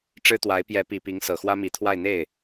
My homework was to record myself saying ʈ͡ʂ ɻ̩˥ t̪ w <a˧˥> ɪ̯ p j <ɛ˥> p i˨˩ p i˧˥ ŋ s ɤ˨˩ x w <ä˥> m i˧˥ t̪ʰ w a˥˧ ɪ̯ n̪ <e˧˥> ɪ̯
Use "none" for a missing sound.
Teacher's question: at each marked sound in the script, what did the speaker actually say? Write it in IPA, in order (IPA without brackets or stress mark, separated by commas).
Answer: a˧˥, ɛ˧˥, ä˥, e˥˩